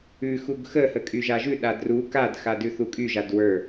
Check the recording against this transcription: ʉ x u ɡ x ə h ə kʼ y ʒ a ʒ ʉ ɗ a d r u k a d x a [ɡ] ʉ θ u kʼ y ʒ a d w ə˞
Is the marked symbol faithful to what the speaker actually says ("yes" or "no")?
no